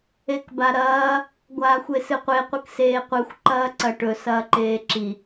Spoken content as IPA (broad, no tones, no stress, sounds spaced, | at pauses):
e k b a ɾ ɐː | ɡʷ aː xʷ e s ɨ qʷ e qʷ ɨ k s eː qʷ ɨ xʷ ǃ ɐː ǀ ɐ ʈ ɵ s ɐː ǃ eː ǁ i